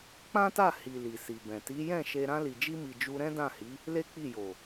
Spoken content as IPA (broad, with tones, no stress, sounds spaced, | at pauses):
k͡p ã˦ t a˦˨ h i˨ l i˨ s i˨ b ɛ̃˨ t i˨˦ j ɛ̃˦˨ ʃ e˧ ɾ ã˧ l i˨ d͡ʒ i˧ m i˨ d͡ʒ u˧ ɾ ɛ̃˦ d ã˦˨ h i˨˦ | l e˦ k͡p i˦˨ j o˨